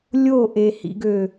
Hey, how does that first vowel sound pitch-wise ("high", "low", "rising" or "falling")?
falling